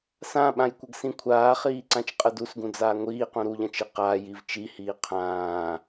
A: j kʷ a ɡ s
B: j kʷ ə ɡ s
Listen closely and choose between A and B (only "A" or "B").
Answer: B